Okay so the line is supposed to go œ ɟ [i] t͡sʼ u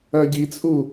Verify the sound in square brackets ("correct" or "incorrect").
correct